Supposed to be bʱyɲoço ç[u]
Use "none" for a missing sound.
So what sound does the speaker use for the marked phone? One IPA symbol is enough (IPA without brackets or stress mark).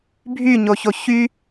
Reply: y